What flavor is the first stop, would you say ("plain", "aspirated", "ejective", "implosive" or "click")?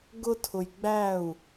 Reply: plain